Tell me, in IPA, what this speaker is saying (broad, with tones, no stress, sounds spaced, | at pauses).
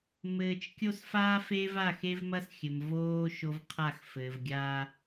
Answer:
m ɘː˦ t͡ʃ kʲ o˦ s f aː˦ f e˦ v a˦˨ x e˦ v m ɐ˦ s xʲ ɘ˨ m v oː˦ ʃ o˦ v qʰ a˦˨ x f ɘː˨ v ɡʲ aː˦